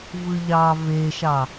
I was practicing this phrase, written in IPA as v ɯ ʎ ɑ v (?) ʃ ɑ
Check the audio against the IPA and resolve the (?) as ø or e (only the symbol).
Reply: e